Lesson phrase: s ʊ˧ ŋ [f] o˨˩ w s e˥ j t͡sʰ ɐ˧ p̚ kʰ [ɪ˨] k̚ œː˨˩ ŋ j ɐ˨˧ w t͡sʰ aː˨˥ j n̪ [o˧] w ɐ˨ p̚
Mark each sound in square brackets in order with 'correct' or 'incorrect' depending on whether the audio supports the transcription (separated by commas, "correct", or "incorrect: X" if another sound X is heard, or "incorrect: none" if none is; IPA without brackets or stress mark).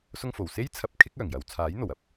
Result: correct, incorrect: ɪ˥, incorrect: o˨˩